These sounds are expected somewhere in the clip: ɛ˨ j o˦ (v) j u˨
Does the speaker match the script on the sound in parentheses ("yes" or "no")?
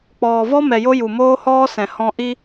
no